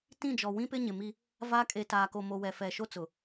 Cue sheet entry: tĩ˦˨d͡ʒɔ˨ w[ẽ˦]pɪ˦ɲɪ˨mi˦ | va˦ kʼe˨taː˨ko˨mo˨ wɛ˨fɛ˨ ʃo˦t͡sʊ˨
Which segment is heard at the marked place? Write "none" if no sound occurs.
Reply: ĩ˦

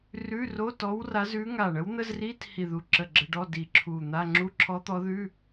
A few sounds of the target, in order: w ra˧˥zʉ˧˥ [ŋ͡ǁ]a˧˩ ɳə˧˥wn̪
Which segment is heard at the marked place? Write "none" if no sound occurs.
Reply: ŋ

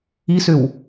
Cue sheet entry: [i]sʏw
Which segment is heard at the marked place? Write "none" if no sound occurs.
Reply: i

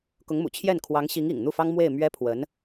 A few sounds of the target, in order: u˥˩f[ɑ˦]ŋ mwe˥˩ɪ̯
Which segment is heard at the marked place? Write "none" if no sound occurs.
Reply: ɑ˥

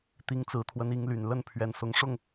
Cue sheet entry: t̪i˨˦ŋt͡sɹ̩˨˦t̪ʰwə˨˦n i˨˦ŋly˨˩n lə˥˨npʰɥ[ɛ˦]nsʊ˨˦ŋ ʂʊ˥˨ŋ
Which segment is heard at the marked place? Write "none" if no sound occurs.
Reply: ɛ˨˩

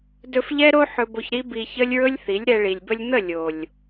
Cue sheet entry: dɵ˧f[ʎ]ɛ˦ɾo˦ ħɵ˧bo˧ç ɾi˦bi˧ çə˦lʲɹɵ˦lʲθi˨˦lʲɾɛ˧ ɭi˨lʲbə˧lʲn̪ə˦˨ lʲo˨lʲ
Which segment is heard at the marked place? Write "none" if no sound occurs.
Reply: ʎ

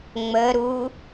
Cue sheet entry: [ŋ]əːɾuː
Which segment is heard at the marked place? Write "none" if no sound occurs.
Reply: ŋ͡m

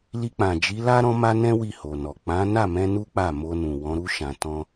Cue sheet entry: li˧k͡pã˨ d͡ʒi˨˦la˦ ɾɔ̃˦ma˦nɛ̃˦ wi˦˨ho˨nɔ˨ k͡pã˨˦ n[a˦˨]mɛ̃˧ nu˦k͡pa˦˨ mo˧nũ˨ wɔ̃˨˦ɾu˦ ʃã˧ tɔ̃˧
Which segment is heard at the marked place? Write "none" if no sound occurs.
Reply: a˦˨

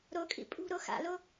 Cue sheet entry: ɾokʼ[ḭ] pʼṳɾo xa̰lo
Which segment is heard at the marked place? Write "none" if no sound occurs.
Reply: ḭ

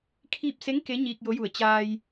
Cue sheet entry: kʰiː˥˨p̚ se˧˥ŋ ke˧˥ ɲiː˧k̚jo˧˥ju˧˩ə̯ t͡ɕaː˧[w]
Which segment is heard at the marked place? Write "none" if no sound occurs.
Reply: j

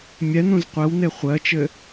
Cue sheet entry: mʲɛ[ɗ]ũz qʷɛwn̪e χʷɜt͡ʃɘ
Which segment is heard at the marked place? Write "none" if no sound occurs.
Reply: n̪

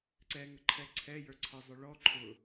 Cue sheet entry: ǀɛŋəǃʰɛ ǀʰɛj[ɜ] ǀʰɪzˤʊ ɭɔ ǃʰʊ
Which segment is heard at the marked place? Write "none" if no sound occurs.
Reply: ə˞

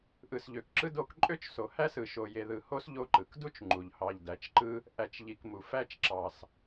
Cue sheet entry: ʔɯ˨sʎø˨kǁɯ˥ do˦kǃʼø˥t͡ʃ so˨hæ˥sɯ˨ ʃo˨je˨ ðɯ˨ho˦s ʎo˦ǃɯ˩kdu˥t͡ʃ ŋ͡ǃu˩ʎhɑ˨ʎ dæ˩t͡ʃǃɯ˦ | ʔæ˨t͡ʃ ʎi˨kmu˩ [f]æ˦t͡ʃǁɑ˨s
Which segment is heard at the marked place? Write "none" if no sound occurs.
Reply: f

